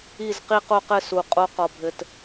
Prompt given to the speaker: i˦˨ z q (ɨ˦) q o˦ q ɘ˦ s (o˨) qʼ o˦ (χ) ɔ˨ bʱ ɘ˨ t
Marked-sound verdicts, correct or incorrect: incorrect: i˦, incorrect: u˨, incorrect: q

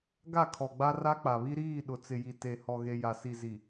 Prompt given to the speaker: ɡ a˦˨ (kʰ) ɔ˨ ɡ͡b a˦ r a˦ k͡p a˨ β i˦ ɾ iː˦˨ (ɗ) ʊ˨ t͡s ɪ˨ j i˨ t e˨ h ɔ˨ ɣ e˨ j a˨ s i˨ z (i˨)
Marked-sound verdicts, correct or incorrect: correct, correct, correct

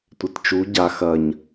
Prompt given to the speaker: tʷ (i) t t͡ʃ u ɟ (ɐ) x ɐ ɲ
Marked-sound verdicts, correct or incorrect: incorrect: e, incorrect: a

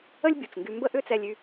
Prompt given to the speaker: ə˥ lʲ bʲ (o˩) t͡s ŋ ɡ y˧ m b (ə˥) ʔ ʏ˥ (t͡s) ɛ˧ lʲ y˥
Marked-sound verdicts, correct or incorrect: incorrect: u˩, correct, correct

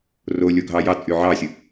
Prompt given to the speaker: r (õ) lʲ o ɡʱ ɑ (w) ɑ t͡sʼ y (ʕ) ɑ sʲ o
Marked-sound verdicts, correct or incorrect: incorrect: o, incorrect: j, correct

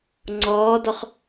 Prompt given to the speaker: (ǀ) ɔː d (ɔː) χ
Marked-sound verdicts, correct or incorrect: incorrect: ŋ͡ǀ, incorrect: ɔ

